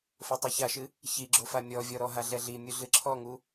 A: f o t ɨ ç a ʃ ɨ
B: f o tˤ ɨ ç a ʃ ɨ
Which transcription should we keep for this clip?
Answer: B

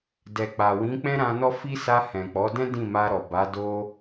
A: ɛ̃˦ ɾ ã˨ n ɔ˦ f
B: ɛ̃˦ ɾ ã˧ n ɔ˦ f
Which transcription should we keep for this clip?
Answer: B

